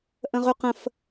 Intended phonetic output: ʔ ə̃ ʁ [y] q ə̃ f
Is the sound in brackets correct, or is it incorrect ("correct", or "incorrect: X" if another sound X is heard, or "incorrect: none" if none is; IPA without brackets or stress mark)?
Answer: correct